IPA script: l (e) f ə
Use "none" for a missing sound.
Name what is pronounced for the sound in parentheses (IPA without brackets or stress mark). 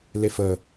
e